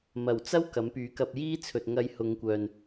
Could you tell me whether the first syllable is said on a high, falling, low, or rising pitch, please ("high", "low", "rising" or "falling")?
low